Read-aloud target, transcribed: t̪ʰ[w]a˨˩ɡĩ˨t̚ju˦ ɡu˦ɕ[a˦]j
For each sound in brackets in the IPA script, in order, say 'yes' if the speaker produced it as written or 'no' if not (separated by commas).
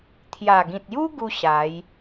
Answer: no, no